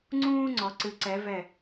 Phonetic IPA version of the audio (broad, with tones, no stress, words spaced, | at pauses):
ŋ͡ǀũː˥ŋ͡ǀɔ˩˧ ǀɨ˩˧ǀɛ˩˧ vɛ˧˩